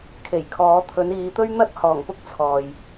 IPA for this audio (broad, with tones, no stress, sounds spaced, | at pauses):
kʰ e˨˩ j kʰ ɔː˨˧ t̪ʰ ɵ˨˧ n iː˨˧ t̪ ɵ˥ ɥ n̪ ɐ˥ t̚ h ɔː˨˩ ŋ p ʊ˥ k̚ t͡sʰ ɔː˨ j